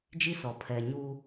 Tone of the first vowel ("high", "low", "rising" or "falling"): high